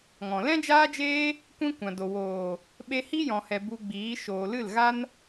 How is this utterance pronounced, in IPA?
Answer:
ŋɔ̃˨ lɛ̃˦d͡ʒaː˦d͡ʒeː˦ | kʷĩ˦kʷã˨do˨ woː˨ | ɓe˧hi˦ jɔ̃˨hɛ˨ bu˧ɡ͡biː˨˦ ʃoː˨lɨ˦˨lɣa˦n

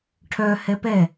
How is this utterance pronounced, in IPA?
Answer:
ʈʰœ hɛpɛ

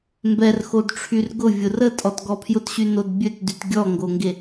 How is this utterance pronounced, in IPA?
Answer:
mbɛrxodʈ͡ʂʰyr ɡʊvʲʊ rətʼɔtɡɔ pʰjʊtɕynod bʲøtdyt ɡʲɔŋɡoŋɡe

